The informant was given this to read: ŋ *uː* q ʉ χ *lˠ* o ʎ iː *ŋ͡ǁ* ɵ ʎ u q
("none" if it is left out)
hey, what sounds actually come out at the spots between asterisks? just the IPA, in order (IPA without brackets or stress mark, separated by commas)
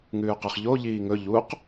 ʉː, ʎ, ŋ